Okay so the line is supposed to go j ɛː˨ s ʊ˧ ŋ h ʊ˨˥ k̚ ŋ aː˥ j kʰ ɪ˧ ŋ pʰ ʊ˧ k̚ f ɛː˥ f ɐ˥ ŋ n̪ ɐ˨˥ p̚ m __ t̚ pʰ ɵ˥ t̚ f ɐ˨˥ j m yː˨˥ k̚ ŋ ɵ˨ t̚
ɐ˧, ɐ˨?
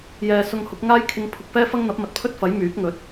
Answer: ɐ˨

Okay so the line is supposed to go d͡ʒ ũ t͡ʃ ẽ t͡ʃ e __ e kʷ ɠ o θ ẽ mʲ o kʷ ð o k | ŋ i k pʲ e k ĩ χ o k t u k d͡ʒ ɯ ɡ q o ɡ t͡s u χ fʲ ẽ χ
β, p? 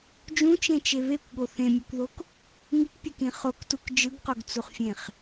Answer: β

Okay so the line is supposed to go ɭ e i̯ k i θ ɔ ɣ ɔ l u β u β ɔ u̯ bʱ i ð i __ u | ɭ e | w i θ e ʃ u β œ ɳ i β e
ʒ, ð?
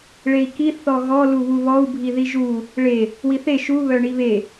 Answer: ʒ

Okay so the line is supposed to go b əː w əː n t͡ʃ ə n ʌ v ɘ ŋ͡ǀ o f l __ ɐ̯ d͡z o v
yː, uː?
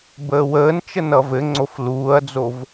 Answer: uː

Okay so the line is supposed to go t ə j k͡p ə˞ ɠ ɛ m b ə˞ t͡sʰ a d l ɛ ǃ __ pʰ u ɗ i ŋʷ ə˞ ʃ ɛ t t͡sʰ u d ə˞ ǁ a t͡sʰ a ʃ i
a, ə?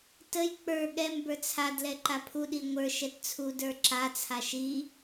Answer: a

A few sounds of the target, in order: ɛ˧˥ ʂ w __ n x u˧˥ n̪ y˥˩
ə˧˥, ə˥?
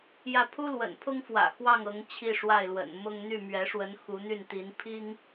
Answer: ə˧˥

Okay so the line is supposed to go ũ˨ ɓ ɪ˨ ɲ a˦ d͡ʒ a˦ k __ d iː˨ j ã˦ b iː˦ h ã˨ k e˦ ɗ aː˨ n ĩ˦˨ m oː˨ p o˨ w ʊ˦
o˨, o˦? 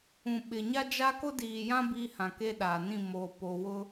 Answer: o˦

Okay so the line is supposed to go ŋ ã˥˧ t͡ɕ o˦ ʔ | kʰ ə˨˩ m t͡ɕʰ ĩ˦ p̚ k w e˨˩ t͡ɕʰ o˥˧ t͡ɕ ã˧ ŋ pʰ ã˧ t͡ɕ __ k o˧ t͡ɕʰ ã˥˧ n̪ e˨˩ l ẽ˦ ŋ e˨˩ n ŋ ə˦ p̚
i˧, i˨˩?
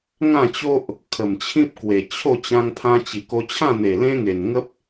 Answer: i˨˩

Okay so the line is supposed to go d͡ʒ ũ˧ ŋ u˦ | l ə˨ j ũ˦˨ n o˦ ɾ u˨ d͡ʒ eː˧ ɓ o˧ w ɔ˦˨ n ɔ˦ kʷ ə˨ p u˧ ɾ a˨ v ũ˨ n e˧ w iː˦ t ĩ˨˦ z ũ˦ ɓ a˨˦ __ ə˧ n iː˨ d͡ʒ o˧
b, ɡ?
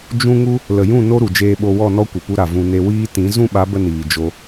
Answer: b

